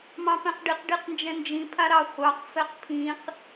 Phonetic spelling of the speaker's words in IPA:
m ɑ̃ p ɛ̃ q ɖ i q ɖ i q n d͡ʒ ɛ̃ n d͡ʒ ĩ pʰ a ɾ ɑ χʷ ɑ q f ɛ q pʰ ĩ q

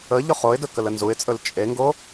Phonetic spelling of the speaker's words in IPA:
ə ʎ ʊ χ o ɪ̯ d ɵ k ə l ə n z u ɪ̯ t͡sʼ ɵ l t͡ʃʼ e ŋ ɡ o

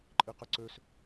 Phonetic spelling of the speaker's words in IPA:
ǃʼ i q ə ǀ ø s

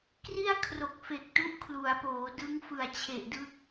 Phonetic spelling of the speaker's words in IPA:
k r i˥˩ a̯ kʰ r o˨˩ k̚ f e˨˩ k̚ t u˦˥ ʔ kʰ l u˩˦ a̯ p oː˩˦ d ɯ˦˥ ŋ f ɯ˨˩ a̯ t͡ɕʰ e˨˩ ʔ d ɯ˦˥ k̚

